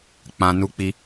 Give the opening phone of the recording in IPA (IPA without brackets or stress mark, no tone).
k͡p